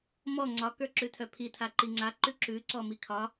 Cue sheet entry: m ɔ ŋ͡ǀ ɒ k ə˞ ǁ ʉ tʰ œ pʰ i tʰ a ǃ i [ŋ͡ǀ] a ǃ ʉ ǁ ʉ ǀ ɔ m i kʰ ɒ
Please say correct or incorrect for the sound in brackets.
correct